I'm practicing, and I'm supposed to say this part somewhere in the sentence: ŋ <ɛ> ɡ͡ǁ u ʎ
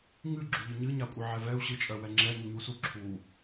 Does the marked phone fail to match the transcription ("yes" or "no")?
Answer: yes